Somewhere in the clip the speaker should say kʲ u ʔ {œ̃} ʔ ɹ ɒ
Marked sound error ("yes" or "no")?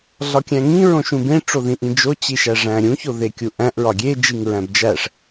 yes